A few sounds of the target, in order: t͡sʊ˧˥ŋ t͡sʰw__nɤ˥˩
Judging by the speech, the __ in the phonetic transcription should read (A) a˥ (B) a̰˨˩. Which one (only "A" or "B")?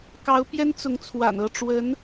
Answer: B